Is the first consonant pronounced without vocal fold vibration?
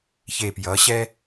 yes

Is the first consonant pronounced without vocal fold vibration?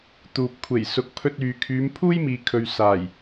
yes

